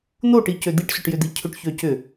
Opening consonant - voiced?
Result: yes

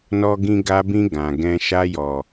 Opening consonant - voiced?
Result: yes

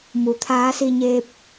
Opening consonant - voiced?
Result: yes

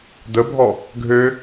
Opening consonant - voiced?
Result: yes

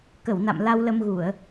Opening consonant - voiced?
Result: no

